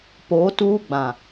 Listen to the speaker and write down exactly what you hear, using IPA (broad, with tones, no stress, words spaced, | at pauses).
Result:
poː˨˦tuː˦ ɡ͡bã˨